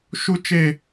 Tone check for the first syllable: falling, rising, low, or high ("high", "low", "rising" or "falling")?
high